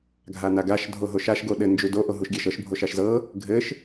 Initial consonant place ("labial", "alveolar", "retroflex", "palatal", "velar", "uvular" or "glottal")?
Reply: velar